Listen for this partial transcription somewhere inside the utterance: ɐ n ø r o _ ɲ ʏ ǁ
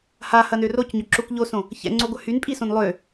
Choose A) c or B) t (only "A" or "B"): A